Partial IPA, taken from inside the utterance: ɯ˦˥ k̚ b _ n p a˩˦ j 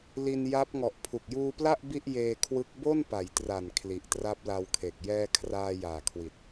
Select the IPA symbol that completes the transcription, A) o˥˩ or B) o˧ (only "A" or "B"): A